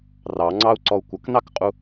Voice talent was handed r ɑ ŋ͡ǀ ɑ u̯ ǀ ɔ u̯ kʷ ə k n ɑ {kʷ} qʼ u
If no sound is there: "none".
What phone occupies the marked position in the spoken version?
k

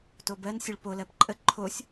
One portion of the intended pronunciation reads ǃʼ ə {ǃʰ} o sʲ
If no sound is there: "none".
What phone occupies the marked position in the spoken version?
ǃʰ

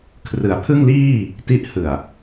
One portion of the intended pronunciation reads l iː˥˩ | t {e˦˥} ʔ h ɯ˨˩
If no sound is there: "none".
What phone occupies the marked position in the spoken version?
i˦˥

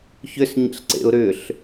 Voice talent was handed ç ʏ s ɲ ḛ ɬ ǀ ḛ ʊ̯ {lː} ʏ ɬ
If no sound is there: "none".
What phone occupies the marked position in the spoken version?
ɾ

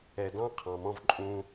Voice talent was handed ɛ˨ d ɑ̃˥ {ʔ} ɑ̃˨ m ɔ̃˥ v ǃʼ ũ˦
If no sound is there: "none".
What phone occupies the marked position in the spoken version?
qʰ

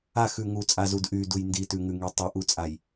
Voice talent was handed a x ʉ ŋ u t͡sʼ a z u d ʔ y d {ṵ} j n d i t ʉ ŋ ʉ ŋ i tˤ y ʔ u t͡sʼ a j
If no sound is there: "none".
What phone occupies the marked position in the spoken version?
u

